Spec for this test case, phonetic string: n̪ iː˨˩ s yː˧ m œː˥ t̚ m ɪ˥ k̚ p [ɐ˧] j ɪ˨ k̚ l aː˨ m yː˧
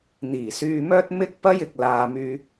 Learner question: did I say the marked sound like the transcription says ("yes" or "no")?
no